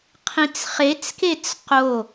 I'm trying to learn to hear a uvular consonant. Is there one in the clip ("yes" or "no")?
yes